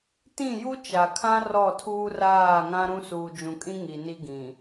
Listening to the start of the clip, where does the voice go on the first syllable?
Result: falling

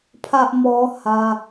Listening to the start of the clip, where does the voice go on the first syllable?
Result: high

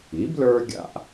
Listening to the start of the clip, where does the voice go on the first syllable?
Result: rising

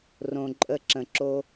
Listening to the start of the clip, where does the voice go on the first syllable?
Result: low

